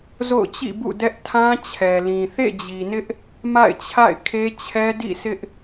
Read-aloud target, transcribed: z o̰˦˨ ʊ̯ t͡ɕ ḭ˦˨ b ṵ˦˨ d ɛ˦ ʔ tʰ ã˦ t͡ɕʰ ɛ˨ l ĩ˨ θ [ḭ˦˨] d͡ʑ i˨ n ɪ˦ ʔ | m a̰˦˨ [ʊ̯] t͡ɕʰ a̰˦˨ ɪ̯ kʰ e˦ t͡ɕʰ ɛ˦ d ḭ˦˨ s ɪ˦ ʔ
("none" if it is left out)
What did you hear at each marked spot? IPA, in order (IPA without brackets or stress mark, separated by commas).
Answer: ḛ˦˨, ɪ̯